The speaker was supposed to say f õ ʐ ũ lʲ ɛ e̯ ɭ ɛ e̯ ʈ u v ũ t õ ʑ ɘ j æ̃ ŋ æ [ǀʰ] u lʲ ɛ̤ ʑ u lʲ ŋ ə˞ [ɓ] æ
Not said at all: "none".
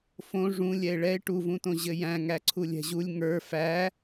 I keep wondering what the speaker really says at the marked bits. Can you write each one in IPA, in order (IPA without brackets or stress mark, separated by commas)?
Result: ǀʰ, f